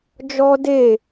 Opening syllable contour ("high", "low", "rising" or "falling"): high